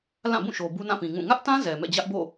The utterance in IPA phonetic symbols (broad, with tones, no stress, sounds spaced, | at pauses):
l ã˦˨ b ũ˦˨ ʃ o˨ b u˦ n ã˦˨ p ĩ˨ ŋ ũ˦˨ ŋ ä˦ ʔ t ã˦ z ɛ˨ m ɛ̰˦˨ d͡ʑ ä˦ ʔ b o̰˦˨